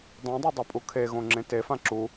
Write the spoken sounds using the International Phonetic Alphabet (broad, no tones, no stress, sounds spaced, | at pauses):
dˤ õ dˤ e dˤ o pʼ u kʰ e ɣ õ ŋ͡ǁ ẽ t e f ã ǁ u